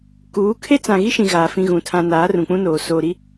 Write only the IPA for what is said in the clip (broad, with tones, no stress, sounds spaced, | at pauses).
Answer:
k uː˨˦ kʰ e˦ t͡s ã˨ ɣ i˦ ʃ ĩ˨ ɣ aː˨ f ĩ˦ ɣ ũ˨ tʰ ã˦ n aː˨˦ r ũ˨ k͡p ũ˦ n oː˨ s oː˨ ɾ i˦